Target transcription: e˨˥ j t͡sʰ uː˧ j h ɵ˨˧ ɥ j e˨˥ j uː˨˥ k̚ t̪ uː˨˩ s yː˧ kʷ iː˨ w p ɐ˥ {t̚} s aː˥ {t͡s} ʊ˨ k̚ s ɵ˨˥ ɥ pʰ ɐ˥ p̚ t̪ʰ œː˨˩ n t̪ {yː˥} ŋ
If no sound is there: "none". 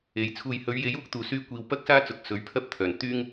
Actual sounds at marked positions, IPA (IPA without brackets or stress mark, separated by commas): k̚, t͡s, yː˥